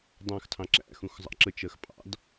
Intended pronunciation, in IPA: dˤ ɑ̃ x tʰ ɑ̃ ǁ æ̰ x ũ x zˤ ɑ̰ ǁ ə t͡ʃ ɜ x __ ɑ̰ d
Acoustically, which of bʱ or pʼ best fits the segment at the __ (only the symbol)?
pʼ